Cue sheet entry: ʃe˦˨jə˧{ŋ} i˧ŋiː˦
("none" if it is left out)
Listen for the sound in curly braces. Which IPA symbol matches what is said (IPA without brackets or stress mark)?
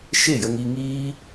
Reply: ŋ